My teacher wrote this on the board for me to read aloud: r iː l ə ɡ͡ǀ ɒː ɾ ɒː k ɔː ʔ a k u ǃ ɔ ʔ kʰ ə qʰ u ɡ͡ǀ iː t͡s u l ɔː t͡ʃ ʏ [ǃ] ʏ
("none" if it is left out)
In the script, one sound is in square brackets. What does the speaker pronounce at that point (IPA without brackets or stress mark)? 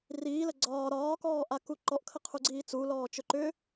ǃ